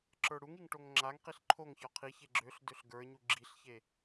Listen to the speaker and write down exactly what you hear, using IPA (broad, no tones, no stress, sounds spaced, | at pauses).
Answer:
ǁ ə˞ ɽ u ŋ i ŋ ʈ o ŋ ŋ͡ǁ a ŋ q i ɬ ǃʰ o ŋ ç ɒ qʰ i ç e ɡ͡ǁ ø ɬ d ø ɬ ɡ ə˞ ɲ u ɡ͡ǁ i ɬ ç e